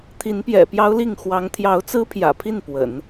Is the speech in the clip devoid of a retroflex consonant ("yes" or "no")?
yes